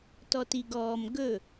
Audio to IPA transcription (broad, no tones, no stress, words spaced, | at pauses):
tɔtiɡɔːm ɡɵ